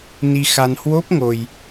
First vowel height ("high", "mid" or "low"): high